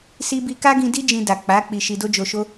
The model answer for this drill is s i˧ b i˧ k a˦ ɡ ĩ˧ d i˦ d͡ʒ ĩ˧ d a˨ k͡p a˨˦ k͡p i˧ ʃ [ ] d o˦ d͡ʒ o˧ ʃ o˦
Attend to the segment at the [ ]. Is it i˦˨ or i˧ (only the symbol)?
i˧